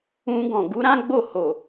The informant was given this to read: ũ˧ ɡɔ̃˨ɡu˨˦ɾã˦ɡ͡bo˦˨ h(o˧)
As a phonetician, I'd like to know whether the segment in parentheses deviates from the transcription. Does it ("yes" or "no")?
yes